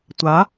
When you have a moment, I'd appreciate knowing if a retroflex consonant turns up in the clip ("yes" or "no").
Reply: no